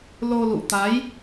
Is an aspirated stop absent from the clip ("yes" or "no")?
yes